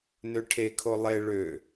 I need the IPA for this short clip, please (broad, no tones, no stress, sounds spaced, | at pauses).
n ø ʈʰ e kʰ o lˠ e ɭ ø